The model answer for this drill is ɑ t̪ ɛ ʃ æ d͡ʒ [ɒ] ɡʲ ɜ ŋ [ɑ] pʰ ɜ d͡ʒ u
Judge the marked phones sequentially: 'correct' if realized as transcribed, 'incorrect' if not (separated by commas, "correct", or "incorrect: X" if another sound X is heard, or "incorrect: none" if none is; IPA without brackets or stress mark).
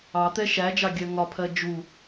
incorrect: ɑ, incorrect: ɒ